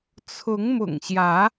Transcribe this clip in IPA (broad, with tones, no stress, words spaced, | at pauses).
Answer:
t͡sʰʊ˨˦ŋmʊ̰˨˩ŋɕjä˨˦